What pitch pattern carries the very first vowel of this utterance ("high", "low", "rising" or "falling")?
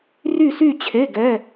falling